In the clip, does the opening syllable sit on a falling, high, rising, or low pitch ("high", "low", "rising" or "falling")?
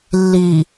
low